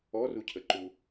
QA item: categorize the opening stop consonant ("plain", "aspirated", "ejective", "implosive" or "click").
aspirated